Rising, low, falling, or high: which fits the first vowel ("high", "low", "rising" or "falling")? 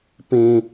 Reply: low